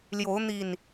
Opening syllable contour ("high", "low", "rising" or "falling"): rising